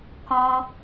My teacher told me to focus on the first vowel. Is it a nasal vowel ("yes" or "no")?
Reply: yes